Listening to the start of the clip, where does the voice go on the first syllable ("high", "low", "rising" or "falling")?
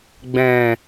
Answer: low